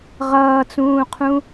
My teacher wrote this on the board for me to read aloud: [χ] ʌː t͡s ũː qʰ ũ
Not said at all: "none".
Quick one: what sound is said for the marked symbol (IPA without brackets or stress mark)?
ʁ